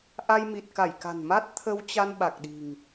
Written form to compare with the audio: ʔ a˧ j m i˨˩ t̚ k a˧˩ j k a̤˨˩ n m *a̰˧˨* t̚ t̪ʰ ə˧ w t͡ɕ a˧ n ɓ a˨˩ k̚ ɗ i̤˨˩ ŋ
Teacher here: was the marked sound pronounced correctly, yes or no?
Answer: no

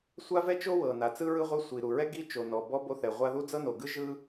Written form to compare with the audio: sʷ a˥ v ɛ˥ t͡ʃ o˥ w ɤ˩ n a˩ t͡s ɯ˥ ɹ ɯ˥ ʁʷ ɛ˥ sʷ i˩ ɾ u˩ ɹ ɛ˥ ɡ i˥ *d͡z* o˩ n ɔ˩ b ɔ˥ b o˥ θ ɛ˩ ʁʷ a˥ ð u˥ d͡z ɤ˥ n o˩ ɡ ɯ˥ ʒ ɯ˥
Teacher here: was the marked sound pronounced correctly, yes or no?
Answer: no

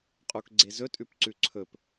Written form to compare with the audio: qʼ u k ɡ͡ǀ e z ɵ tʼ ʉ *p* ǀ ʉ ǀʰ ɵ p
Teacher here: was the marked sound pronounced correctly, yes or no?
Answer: yes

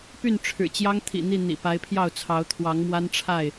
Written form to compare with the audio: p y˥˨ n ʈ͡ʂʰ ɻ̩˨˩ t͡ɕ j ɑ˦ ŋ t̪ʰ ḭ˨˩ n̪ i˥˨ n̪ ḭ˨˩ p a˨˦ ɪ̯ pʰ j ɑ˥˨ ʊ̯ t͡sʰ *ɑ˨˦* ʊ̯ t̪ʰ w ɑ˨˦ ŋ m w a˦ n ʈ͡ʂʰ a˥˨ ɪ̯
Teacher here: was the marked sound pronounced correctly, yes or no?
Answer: yes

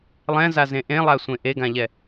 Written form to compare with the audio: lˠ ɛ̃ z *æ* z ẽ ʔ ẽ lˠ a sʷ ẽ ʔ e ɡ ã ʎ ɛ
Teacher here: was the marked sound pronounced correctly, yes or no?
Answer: no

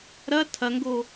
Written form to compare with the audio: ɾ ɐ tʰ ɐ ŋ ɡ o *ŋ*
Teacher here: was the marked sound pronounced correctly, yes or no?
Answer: no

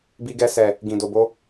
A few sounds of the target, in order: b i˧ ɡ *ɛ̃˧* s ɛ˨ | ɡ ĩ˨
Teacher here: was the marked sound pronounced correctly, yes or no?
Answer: no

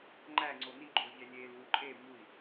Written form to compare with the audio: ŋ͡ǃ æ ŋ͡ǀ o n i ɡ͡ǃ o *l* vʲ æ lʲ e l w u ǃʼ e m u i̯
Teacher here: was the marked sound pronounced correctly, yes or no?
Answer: yes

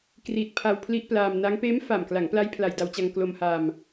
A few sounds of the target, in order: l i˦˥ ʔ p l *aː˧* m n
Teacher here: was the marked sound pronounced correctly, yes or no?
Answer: yes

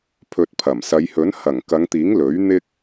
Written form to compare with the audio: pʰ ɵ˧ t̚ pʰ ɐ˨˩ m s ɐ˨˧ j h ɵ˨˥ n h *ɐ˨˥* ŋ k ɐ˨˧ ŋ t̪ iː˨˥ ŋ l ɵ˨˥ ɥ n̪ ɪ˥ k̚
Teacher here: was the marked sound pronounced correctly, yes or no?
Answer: no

